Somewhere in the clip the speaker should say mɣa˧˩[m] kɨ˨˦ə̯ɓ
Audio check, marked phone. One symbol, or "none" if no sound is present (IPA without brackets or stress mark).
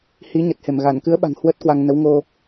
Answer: n